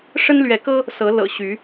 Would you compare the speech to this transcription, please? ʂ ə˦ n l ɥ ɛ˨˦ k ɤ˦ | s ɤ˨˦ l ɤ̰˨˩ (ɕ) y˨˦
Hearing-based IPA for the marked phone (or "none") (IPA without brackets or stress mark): ɕ